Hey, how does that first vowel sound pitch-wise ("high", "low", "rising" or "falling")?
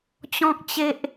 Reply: high